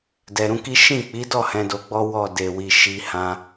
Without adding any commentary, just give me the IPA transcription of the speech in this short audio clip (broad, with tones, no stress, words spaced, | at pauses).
dɛ˨ɾũ˧ki˦ ʃĩ˦˨k͡pi˨˦dɔ˦˨ hɛ̃˨˦do˧ɡ͡bɔ˦ wɔ˦˨ de˧wi˧ʃi˦ hã˧